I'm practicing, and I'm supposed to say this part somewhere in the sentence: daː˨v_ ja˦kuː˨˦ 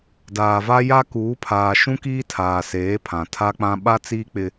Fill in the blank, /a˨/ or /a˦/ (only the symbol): a˦